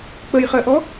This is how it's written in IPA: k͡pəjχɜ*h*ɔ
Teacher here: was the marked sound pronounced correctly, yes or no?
no